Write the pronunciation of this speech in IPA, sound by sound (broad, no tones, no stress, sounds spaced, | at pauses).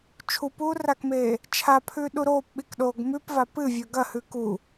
t͡ʃʰ u p uː r a k m eː | t͡ʃʰ a pʰ ʉː ɗ u ɾ oː p ɓ i k ɗ oː ɡ m ʉ p v a p ɨ vʲ ɵ ɡ ɐ h ʉ k u